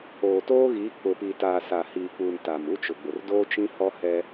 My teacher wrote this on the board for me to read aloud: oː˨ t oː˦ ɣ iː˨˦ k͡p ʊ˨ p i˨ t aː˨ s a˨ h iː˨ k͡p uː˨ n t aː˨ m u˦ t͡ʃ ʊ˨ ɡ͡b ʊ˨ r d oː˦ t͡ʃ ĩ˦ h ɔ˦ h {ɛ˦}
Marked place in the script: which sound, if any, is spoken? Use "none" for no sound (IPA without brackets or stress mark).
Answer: ɛ˦